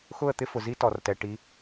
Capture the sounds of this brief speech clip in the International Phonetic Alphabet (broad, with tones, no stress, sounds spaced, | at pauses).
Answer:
x ʊ˦˨ ə̯ t̪ ɪ˦ f ʊ˨ z i˦ t ɔ˨ r t ɛ˨ ʈ i˨˦